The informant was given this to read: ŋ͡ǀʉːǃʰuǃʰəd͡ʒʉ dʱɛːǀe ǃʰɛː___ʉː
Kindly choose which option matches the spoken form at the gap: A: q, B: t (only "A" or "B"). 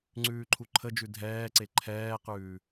A